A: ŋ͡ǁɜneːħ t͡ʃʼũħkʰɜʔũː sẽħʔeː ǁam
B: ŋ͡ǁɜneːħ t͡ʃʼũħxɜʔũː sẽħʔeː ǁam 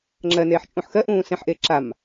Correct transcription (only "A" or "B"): B